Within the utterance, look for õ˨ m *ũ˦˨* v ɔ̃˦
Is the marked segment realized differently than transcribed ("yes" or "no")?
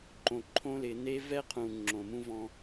yes